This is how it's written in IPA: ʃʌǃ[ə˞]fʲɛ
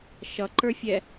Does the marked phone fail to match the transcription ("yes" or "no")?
no